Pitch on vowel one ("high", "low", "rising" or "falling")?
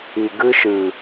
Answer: low